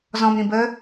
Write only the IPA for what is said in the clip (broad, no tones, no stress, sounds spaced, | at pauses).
z ɔ̃ m ɾ ĩ b ə